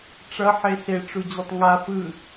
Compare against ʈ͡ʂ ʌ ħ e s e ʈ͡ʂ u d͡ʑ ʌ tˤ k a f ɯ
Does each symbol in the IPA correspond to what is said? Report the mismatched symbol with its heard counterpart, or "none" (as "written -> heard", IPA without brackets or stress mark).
k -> ŋ